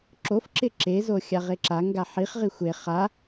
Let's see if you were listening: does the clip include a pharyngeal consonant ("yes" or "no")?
yes